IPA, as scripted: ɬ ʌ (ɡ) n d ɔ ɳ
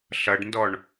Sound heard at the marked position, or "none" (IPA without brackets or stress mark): ɖ